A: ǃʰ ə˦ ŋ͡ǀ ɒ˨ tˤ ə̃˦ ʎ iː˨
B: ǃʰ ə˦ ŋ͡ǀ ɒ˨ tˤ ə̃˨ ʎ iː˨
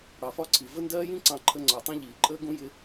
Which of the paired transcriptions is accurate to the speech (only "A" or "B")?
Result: A